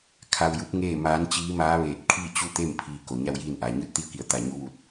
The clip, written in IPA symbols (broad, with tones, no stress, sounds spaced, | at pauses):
kʰ a˧ w j u˧˥ p̚ ŋ eː˥˨ m aː˧˥ n t͡ɕ iː˧˥ m aː˧˥ ʋ eː˧˩ t̚ kʰ iː˥˨ t͡ɕ u˥˨ t̪ e˥˨ m pʰ iː˧ k o˩˧ ɲ a˥˨ w j iː˥˨ n ʔ aː˩ ɲ ɯː˥˨ t̚ t̪ i˥˨ ə̯ k i˧˩ ə̯ t̪ a˧˩ ɲ u˧˥ ʋ u˧ t̚